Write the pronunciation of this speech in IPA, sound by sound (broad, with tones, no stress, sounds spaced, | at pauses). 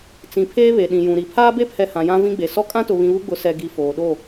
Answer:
t͡s ĩ˨ pʰ eː˦ β e˨ ɗ ĩ˨ j ũ˨ ɾ i˨ pʰ aː˦ b e˦ pʰ ɛ˨ h ã˨ j ã˦ v ĩ˦ ɡ͡b e˨ s ɔ˦ kʼ ã˦ t ʊ˨ β ĩ˨ β u˦ ɡ͡b ʊ˨˦ s ɛ˨ ɡ i˨ f oː˨ ɗ o˦˨